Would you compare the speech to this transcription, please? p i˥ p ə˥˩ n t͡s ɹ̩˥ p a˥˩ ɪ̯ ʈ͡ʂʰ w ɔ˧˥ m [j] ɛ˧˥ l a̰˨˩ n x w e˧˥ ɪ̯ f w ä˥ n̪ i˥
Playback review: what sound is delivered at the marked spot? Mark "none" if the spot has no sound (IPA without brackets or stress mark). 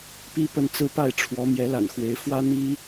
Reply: j